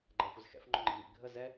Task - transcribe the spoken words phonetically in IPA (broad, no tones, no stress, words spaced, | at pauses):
ɡ͡ǃæxʷɪzxɛ̰f ŋ͡ǃʊŋ͡ǃḭmḭ ɡʱə zɛ